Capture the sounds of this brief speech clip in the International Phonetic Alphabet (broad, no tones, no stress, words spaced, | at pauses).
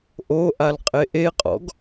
ʔoʔal qʼeʔeqʼɔ̰ɡ